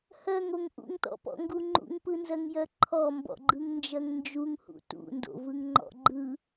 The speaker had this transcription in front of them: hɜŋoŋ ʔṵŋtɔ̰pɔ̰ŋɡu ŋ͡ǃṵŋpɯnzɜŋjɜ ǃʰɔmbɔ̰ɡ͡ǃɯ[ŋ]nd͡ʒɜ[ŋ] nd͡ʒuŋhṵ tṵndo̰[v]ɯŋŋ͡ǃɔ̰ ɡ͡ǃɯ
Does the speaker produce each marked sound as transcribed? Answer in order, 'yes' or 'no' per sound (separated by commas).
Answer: yes, yes, yes